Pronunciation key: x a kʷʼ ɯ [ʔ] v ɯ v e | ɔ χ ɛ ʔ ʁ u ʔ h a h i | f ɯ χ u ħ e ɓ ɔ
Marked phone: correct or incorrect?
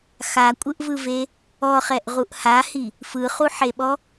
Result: correct